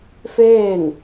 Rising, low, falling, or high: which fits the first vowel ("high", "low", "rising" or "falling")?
falling